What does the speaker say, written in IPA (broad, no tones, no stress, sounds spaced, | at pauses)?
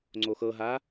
ŋ͡ǀ o x ɤ ɦ a